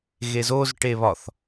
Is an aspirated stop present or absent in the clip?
absent